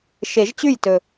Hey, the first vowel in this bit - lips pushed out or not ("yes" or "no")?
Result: no